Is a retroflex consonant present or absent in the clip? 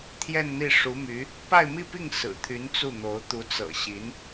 present